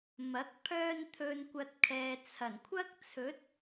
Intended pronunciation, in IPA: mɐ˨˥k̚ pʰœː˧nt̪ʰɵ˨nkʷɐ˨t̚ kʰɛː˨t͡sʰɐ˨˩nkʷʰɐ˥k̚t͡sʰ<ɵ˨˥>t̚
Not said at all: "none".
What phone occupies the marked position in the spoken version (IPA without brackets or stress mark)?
ɵ˨˥